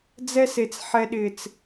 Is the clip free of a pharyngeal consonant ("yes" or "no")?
no